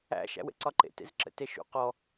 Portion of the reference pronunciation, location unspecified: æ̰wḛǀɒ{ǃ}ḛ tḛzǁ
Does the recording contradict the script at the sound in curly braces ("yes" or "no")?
no